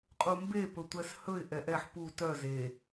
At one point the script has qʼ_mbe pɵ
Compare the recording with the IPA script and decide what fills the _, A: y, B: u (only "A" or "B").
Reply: B